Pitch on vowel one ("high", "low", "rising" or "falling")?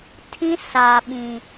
high